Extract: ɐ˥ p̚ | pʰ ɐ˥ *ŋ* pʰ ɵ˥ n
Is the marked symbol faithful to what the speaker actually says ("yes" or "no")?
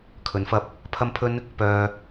no